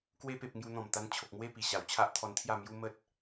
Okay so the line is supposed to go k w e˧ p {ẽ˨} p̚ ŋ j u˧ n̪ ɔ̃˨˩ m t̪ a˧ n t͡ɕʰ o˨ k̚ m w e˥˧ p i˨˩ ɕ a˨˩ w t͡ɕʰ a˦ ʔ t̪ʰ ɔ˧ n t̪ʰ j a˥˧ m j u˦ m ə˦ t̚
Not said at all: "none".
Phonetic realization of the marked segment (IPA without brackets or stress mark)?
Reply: e˨